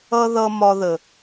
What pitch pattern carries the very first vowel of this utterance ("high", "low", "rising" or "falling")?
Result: high